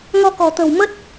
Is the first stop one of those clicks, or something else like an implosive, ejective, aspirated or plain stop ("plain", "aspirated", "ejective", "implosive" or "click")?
plain